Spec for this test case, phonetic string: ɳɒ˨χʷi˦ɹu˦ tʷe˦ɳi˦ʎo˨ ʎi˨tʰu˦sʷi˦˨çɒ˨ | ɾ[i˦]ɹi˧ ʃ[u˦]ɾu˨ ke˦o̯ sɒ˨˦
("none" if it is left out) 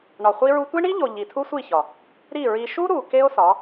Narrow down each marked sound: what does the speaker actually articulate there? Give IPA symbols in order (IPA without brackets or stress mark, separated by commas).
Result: i˦˨, u˦